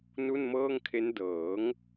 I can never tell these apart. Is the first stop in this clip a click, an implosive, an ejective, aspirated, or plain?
aspirated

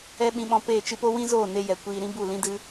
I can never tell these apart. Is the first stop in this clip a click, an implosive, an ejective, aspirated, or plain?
implosive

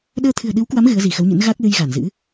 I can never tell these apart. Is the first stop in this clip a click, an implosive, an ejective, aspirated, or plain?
implosive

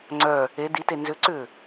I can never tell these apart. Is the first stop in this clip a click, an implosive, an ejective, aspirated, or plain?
click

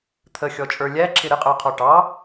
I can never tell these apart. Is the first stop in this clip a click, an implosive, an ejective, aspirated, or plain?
aspirated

